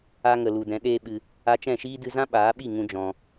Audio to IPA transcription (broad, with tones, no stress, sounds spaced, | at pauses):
a˧ ŋ ə˨ l u˨ d ɛ̃˨˦ ɗ eː˦ ɓ ɨ˧ | a˧ t͡ʃ ɛ̃˦˨ ʃ iː˦ d ɨ˧ z ã˦ ɓ aː˨˦ ɓ i˦˨ ŋ ũ˦ d͡ʒ ɔ̃˧